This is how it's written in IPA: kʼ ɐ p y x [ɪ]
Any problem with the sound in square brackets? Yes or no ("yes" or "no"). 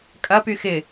no